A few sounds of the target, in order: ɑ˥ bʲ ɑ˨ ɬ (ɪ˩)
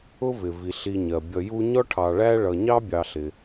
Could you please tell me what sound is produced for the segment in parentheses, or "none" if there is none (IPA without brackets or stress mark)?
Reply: ɪ˩